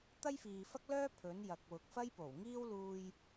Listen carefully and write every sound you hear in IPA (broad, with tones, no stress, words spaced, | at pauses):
t̪ɐ˥jfiː˨fɐ˥k̚lœː˥ pʰɵ˨˥njɐ˨k̚ wʊ˨k̚fɐ˥jpo˨˩wŋiː˥w luː˧j